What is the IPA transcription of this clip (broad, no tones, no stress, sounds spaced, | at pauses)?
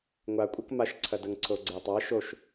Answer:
ŋʷ a kʷʼ ɐ k m a ʃ ǀʰ ɐ d ɐ ŋ ǀʰ o ɡ͡ǀ e tˤ a ʃ o ʃ